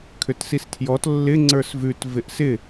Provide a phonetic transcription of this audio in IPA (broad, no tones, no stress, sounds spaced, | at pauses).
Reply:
kʰ ʏ t s i s tʰ j ɔ t lː ɪ ŋ͡ǀ ə˞ s v ʉ t v ɪ ʔ s ɪ